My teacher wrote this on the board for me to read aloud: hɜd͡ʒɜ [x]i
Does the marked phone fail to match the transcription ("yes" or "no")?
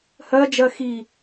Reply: no